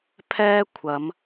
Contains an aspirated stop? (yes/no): yes